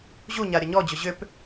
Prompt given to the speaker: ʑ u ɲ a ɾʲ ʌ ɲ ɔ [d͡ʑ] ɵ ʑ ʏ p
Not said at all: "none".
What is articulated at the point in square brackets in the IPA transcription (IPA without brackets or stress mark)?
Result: d͡ʑ